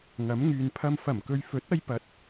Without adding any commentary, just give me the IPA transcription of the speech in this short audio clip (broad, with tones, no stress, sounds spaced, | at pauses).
ŋ ɐ˨˥ m ŋ yː˨ n pʰ ɐ˧ m f ɐ˨˩ m k ɵ˨ ɥ f ɵ˨˥ t̚ ɐ˧ j p ɐ˨˥ t̚